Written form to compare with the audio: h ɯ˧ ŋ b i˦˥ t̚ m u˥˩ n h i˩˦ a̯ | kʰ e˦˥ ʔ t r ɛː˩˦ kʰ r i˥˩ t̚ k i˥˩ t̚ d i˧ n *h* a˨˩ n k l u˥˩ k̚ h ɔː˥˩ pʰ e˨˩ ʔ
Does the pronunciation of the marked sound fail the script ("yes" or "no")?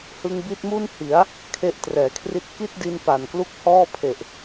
yes